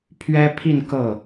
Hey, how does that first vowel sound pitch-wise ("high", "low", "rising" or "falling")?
high